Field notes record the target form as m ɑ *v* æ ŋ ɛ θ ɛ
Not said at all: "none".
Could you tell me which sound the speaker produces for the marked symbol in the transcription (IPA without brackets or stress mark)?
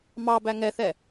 b